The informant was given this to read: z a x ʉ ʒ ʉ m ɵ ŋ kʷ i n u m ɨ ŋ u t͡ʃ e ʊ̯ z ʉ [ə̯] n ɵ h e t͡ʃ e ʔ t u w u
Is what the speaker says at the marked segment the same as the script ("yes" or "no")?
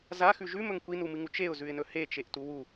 no